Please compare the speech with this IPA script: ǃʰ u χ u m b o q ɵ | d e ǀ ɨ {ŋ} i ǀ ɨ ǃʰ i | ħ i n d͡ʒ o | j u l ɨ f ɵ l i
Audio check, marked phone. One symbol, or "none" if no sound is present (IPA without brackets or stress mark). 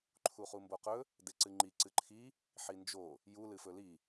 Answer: ŋ͡ǃ